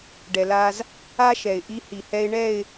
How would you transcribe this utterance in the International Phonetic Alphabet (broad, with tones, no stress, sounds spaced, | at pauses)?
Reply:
ɖ ɛ˨ l a˦ z | a˦ ʃ ɛ˨ ɪ̯ ʔ i˦ h i˨ h ɛ˦ ɪ̯ ɳ ɛ˦˨ ɪ̯